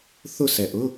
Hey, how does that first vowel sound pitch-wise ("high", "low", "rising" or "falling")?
falling